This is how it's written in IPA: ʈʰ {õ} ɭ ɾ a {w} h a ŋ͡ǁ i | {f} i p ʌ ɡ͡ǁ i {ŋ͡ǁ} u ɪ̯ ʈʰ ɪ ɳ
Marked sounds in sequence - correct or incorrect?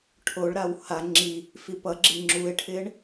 incorrect: o, correct, correct, correct

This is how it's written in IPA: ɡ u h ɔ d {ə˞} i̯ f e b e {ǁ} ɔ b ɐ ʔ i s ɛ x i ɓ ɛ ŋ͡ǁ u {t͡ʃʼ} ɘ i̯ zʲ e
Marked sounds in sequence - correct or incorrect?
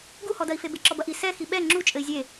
incorrect: ɐ, correct, correct

